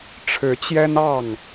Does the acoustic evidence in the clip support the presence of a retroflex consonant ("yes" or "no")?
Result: yes